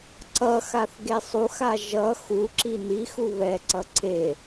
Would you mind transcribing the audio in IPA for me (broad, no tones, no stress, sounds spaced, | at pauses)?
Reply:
ǀ ʌ x a θ ɡ e sˤ u x a ʒ ʌ x u ǁ i n i x u β ɛ ǀ ʌ ǀ e